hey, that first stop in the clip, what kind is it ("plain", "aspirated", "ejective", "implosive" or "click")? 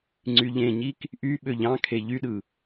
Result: click